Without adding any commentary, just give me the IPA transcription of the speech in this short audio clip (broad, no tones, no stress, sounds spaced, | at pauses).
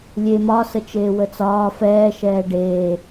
lʲ e m ɒ s ə t͡ʃ eː w ə t͡s ɒː f ɛː ʃ ɛː ɖ eː